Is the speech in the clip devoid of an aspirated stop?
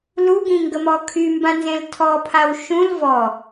no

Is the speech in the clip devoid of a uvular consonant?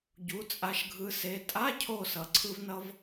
yes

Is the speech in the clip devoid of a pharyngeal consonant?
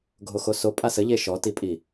yes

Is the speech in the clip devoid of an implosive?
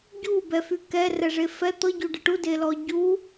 yes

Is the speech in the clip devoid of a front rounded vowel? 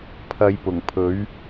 yes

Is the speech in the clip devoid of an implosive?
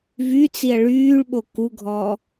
no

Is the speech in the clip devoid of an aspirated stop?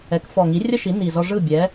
yes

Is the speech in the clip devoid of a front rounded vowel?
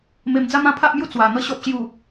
yes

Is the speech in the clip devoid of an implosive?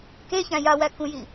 yes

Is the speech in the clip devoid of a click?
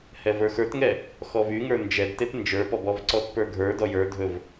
no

